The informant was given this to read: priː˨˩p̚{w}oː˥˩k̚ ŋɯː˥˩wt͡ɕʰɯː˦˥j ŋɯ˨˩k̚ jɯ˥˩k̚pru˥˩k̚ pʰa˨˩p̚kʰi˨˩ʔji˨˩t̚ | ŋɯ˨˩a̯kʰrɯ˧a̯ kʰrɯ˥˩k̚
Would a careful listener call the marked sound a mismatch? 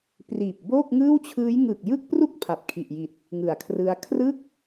yes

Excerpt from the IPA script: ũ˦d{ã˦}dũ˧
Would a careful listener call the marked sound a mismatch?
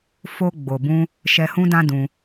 no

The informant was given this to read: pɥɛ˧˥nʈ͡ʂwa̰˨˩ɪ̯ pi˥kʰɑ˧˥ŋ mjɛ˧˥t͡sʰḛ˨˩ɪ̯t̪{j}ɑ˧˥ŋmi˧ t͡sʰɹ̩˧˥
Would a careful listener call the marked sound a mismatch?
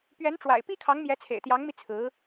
no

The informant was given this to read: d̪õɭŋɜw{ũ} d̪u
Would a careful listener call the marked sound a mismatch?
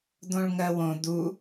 yes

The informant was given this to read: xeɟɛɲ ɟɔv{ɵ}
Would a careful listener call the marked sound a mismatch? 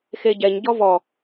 yes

